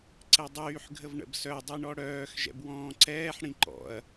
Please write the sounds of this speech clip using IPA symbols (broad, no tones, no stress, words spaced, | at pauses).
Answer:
ǀɛdˤyːħ ɡʱəvɳə̰bsœ dˤiɳɔɽœːx ʒɛ̰bwɔ̃ːǀɛːħ ɽĩǃɔ̰ɐ̯